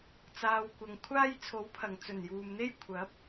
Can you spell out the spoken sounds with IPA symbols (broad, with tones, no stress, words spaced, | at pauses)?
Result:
t͡saː˨wkʷɐ˨ŋkʷʰaː˥j t͡sʰo˨˥wpʰɐ˨˩ŋ t͡sɵ˨˩njuː˨mn̪e˥j kʷʰɐ˨˥p̚